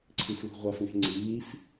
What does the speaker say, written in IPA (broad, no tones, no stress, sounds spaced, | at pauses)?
ǀʰ i f l ṳ ʁʷ a f ŋ e̤ ŋ͡ǀ iː f